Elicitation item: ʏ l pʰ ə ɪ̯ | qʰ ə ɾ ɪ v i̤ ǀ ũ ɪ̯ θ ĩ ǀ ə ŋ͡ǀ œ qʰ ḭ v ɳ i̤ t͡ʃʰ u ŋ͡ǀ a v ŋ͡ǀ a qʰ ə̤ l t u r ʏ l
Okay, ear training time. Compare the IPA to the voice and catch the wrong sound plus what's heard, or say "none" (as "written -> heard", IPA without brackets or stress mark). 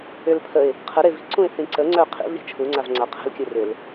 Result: t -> kʲ